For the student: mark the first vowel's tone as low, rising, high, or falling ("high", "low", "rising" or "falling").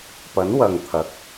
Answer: rising